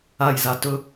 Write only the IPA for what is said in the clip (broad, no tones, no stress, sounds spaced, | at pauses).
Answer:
a j z a t ɵ